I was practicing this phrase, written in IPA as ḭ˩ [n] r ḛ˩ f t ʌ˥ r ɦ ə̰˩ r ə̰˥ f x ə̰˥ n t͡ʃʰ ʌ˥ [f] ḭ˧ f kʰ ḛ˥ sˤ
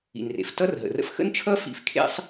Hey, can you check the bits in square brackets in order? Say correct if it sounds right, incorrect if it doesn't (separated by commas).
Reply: correct, correct